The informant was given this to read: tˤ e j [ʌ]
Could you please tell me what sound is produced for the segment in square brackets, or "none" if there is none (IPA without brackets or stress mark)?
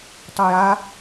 a